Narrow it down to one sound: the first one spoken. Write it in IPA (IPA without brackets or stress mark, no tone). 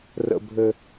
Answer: r